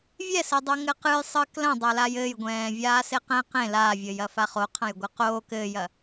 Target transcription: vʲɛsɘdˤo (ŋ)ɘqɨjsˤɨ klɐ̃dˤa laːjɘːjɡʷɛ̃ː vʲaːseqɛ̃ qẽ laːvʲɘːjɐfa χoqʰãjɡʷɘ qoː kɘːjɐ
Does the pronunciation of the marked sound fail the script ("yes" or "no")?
no